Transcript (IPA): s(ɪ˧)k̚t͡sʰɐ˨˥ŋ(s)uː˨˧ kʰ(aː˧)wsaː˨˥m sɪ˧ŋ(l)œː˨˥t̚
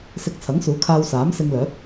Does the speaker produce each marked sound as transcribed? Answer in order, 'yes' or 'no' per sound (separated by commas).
yes, yes, yes, yes